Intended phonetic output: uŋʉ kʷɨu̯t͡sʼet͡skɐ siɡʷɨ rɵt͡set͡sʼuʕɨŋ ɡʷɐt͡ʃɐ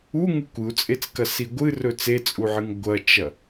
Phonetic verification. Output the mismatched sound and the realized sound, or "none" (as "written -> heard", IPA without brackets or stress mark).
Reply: none